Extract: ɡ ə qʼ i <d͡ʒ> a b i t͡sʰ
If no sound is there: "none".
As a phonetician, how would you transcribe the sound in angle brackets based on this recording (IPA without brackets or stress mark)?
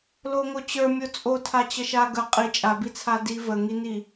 t͡ʃʼ